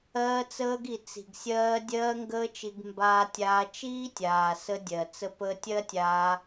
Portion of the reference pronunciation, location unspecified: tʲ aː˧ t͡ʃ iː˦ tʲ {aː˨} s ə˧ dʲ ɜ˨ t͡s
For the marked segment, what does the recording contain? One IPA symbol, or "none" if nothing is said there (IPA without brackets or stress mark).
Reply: aː˨